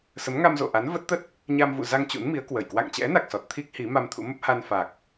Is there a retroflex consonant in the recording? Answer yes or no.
no